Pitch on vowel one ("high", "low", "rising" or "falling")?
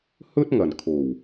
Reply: high